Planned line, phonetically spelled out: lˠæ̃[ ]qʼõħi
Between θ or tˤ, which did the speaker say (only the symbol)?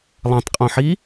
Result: tˤ